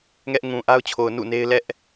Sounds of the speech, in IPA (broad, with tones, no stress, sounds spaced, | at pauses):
ŋ ɛ˦ ʔ ŋ ũ˨ ʔ a˦ ʊ̯ t͡ɕʰ o˨ ʊ̯ n ṵ˦˨ n e˦ ɪ̯ l ɛ˦ ʔ